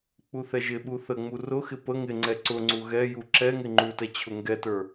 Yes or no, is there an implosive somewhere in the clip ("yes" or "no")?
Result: yes